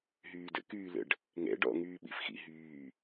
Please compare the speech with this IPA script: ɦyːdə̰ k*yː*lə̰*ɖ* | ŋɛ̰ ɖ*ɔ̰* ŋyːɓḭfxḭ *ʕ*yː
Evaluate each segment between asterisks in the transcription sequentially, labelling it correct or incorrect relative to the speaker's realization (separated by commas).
correct, correct, correct, incorrect